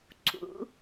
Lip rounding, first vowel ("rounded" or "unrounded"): rounded